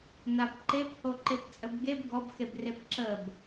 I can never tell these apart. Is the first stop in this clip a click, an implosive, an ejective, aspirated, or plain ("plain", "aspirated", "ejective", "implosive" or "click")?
plain